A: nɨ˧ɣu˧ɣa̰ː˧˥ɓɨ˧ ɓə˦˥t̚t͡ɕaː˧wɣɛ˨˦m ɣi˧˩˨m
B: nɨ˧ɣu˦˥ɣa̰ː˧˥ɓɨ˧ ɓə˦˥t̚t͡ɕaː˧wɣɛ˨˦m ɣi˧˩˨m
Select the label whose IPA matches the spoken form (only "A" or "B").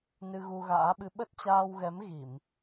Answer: A